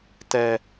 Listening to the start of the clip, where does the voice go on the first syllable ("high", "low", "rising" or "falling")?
high